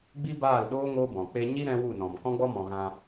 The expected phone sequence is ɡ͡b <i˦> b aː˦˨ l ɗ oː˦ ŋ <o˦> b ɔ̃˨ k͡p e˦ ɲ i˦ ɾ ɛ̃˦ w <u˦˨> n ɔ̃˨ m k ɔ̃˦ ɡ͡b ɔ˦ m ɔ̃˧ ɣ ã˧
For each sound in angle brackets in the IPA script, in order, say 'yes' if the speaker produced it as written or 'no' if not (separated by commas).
yes, yes, yes